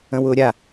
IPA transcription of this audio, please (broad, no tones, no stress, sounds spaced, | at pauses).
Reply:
ə̃ w ʊː ɾʲ a